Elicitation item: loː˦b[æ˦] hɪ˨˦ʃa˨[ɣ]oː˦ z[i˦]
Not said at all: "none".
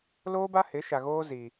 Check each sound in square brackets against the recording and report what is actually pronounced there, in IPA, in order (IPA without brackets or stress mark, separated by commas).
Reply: a˦, ɣ, i˦